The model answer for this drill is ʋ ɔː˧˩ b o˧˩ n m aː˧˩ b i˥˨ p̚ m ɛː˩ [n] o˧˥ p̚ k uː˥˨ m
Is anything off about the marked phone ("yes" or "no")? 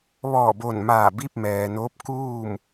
no